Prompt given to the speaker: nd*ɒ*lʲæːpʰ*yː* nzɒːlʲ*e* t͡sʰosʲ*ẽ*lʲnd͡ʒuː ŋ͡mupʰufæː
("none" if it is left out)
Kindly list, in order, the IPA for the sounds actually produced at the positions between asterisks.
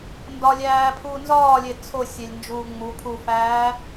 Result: ɒ, uː, e, e

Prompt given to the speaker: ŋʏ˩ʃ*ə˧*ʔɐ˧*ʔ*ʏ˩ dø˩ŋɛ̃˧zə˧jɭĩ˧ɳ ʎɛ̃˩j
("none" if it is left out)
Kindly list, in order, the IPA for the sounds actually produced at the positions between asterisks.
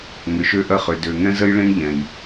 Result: ø˧, χ

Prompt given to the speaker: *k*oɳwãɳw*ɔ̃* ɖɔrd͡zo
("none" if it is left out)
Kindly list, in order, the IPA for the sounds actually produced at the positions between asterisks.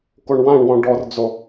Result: k, ɔ̃

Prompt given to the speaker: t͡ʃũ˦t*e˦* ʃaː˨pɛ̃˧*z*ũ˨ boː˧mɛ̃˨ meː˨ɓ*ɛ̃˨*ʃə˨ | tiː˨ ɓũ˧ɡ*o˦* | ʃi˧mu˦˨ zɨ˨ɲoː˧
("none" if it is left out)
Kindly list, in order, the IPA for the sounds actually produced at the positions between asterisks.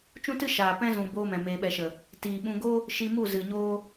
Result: ɨ˦, z, ɛ˨, o˦

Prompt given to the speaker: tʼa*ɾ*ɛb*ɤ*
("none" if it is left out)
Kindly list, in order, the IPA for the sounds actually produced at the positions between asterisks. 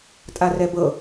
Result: r, ɤ

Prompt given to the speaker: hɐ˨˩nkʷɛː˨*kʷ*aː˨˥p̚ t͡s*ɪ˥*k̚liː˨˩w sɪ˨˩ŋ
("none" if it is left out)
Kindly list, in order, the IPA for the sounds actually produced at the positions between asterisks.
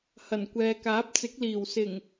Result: k, ɪ˨˥

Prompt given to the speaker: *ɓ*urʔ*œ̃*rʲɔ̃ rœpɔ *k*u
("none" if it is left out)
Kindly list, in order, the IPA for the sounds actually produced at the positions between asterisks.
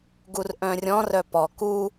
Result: ɡ, œ̃, k

